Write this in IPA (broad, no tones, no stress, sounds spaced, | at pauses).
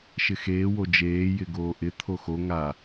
ʃ ɪ x eː w o d͡ʒ eː j ɪ ɡ oː ʔ ɪ t̪ʰ o x o ŋ a